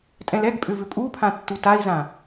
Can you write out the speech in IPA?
tʼɛ̃lɛɡpʼʏ vʏpʼupʰã tːutai̯zã

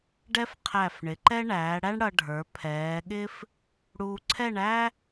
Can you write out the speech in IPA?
ɖɛ˥fqʰæ˧˩fɳɪ˩˧ǃɛ˥ ɳæː˩˧ɽæ˥ɳ ɽʌ˧ ɖʱə˞˩˧pʰɛː˩˧ɠɪ˥f | ɽuː˧ǀʰɛ˥˧ɳæ˥

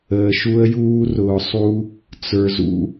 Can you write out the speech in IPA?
əː˨ʃu˧ə̯ juː˧rʊː˨sˤu˧ | t͡sə˞˨zṵ˧

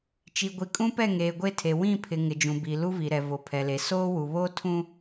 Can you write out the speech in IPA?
t͡ʃi˨ɡʷi˨kʼũ˦pɛ˦˨ ŋeː˨ɡʷe˦˨tʰe˨ wĩ˦˨pʰɪ˨ ŋɪ˨d͡ʒũ˨bi˨ lu˦vi˨ɾɛ˨ vo˨pʰɛ˨le˨ soː˦wu˨βoː˦ tʰũ˦

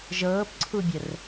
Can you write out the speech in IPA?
ʒɤːpǀʰubʲər

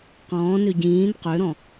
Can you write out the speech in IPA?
qɔ̃ːnø ɟĩːn qøɾɔ̃

